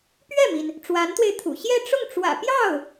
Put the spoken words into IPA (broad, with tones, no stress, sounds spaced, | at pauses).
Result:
p ɥ ɛ˥˩ m i˩ n | ʈ͡ʂ w a˧˥ n t̪ w e˧ ɪ̯ t̪ʰ ṵ˨˩ ɕ j ɛ˥˧ ʈ͡ʂ ʊ˥˩ ŋ ʈ͡ʂ w ä̰˨˩ p j ɑ˥˩ ʊ̯